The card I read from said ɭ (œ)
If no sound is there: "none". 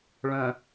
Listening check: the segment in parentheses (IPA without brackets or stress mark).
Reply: œ̃